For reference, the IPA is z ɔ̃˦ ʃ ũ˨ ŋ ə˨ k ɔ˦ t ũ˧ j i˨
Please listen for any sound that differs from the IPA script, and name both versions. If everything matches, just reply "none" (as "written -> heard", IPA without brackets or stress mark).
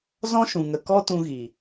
j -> ɣ